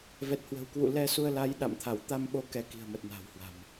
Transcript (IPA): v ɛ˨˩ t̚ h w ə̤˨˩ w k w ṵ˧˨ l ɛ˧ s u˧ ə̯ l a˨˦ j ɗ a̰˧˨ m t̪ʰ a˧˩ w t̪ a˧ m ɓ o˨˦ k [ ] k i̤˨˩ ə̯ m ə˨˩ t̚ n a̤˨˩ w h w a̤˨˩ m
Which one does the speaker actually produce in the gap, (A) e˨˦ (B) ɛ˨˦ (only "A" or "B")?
B